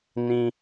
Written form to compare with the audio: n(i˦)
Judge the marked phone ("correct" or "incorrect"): incorrect